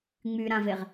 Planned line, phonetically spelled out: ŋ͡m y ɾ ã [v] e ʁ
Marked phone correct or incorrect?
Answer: correct